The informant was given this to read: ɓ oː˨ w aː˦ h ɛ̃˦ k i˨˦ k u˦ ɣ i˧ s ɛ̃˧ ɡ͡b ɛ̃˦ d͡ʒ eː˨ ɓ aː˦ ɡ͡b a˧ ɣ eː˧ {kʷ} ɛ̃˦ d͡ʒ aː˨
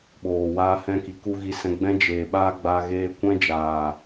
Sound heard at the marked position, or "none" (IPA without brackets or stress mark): kʷ